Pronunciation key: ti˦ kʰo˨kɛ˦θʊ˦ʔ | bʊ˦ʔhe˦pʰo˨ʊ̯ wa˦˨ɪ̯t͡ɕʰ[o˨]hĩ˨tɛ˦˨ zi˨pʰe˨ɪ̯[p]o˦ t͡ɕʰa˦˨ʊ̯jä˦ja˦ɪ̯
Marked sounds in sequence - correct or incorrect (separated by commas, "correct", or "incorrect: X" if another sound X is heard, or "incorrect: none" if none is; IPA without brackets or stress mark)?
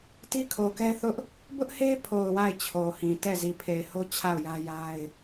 correct, incorrect: h